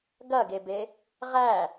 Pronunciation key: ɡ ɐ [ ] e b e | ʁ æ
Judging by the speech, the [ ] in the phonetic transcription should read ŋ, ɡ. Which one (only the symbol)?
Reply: ɡ